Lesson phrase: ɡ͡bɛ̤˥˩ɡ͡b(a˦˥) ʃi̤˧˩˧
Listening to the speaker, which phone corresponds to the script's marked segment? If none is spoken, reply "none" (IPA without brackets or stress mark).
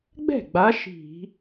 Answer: a˨˦